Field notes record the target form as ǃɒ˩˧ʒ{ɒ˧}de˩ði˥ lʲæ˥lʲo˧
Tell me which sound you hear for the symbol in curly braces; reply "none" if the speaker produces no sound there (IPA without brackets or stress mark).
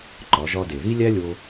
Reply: ɒ˧